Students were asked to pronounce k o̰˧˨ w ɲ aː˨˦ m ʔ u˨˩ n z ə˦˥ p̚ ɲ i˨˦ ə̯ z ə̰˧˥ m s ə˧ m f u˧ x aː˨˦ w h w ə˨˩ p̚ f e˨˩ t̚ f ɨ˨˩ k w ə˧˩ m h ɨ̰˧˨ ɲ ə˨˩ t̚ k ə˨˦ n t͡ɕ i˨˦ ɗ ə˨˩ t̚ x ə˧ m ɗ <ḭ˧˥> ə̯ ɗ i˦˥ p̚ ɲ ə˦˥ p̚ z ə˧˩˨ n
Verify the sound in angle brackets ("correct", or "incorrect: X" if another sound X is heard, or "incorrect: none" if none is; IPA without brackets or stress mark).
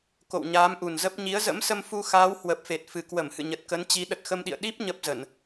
incorrect: ḭ˧˨